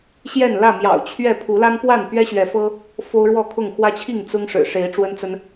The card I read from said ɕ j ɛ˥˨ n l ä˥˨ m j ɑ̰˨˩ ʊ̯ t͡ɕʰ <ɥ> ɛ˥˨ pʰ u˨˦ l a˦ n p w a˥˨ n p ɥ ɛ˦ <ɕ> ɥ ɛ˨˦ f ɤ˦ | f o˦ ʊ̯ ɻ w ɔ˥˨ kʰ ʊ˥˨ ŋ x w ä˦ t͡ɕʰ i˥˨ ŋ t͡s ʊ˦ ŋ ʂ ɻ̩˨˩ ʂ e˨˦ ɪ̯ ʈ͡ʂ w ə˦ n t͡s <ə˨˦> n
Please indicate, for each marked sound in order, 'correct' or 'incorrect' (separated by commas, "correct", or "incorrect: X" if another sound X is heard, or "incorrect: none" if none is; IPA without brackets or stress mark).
correct, correct, incorrect: ə˦